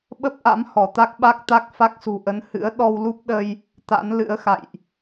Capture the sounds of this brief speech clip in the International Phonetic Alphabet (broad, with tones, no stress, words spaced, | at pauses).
ɓə˦˥p̚ʔa̰˧˥m hɔ˧˩t̪a˦˥k̚ɓa˦˥k̚t̪a˦˥k̚ fa˦˥k̚sṳ˨˩ ʔə˨˦n hɨ̰˧˥ə̯ ɗɔ˧wlu˦˥p̚ɗə˧j | t̪a̰˧˥nlɨ̰˧˥ə̯xa̰˧˨jʔ